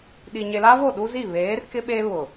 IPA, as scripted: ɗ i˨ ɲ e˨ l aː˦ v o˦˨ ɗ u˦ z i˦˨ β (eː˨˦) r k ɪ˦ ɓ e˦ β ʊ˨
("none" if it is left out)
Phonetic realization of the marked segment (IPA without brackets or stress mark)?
eː˨˦